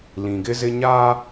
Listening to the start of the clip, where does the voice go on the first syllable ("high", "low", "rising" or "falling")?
low